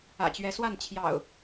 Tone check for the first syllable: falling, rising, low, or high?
low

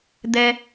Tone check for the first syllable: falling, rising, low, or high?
high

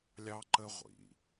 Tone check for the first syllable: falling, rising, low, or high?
high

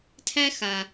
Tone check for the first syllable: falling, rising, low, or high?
high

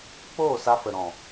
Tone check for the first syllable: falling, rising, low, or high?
falling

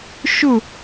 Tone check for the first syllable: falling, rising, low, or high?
falling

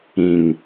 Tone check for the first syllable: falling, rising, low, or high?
low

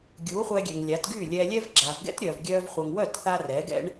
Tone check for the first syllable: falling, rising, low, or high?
rising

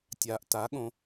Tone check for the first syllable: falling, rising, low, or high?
low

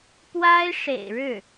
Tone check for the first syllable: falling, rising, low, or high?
high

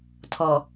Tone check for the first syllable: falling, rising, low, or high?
low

